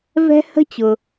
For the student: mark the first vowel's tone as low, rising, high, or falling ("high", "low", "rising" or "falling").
high